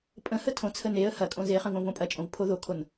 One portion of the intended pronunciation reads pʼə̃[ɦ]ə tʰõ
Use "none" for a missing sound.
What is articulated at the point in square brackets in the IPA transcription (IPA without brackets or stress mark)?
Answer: h